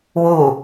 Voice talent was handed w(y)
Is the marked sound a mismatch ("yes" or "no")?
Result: yes